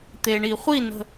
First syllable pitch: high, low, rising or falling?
low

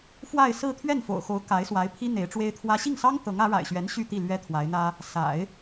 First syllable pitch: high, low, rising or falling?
falling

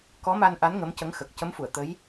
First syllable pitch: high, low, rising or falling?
rising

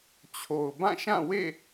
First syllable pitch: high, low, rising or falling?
low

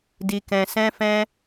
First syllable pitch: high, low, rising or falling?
low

